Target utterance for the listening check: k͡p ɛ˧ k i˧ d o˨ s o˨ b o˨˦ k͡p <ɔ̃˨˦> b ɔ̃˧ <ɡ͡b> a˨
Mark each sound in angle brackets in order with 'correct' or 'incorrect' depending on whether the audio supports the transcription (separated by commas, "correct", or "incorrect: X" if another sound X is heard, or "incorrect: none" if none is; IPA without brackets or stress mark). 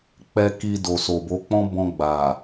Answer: incorrect: ɔ̃˦, correct